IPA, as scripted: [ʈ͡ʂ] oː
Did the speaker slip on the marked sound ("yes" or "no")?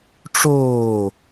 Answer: no